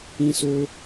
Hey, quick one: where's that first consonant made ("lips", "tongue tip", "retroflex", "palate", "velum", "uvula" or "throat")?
tongue tip